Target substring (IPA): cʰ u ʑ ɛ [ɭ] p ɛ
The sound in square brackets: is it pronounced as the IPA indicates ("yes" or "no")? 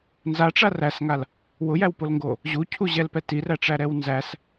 no